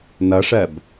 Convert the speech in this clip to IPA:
n ʌ ʂ ɜ b

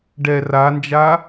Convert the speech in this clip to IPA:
ɖ ɛ r a n d͡ʒ a

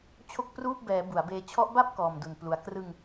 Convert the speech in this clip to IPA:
t͡ɕʰ o˥˩ k̚ p r uː˥˩ p̚ b ɛː˩˦ b u˩˦ a̯ b eː˧ t͡ɕʰ ɔ˦˥ ʔ b a˥˩ p̚ k ɔː˨˩ m d u˨˩ n p l u˨˩ a̯ k r ɯ˧ ŋ

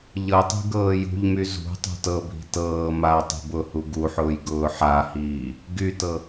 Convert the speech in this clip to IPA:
ʎ ɤ tˤ i̤ ɡ ɤː j ṳ ʎ m y z ṳ tˤ ṳ t ɤ bʱ i̤ t ɤː m a tˤ i̤ b ʊ h u ɡ u ħ ʊː j ɡ ʊː ħ a h iː | ɡ y t ɤ

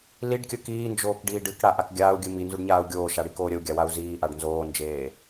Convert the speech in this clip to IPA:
l i ɖ kʲ ə k iː n d͡ʒ oː k ɖ iː ɖ ɨ k ɽ a ʔ a k ɡʲ aː u̯ ɡʲ ɨ m i n z u ɖ ɲ aː u̯ ɡʲ oː ʃ a ɽ i k oː ɾʲ ə u̯ ɡʲ a w a u̯ z iː ʔ a ɖ n z oː n d͡ʒ eː

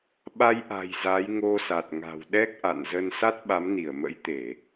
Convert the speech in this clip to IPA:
ɓ a˧ j ʔ a̤˨˩ j z a˨˦ j ŋ o˧ s a˨˩ t̚ ŋ a̤˨˩ w ɗ ɛ˦˥ k̚ ʔ a̰˧˨ n z ə˧ n s a˦˥ t̚ ɓ a˨˦ m n i˧˩ ə̯ m ə̰˧˥ j t̪ e˧˩˨

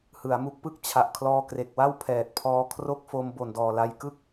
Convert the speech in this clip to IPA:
h ɯ˩˦ a̯ m u˦˥ k̚ p ɯ˥˩ k̚ t͡ɕʰ a˨˩ ʔ kʰ l ɔː˧ k r e˨˩ k̚ w a˥˩ w pʰ ɛː˨˩ t̚ pʰ ɔː˧ kʰ r o˥˩ k̚ f o˧ m b o˨˩ n d ɔː˨˩ l a˧ j k ɯ˥˩ k̚

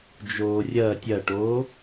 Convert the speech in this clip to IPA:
d͡ʒ oː rʲ ɐː tʲ ɐ ʈ oː

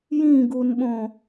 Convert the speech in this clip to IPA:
j ĩ ɡ u n ɓ õ

